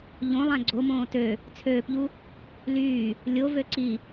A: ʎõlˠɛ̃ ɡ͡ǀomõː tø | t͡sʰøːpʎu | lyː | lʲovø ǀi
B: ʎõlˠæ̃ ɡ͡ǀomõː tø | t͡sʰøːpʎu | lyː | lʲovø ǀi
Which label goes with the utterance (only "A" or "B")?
B